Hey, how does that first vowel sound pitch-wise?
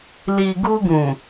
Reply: low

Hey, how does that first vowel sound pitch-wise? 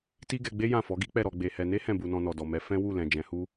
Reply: high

